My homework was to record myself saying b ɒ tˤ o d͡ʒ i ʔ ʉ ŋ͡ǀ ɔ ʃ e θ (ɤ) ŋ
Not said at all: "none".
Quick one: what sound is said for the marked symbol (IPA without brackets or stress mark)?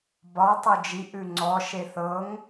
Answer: ɤ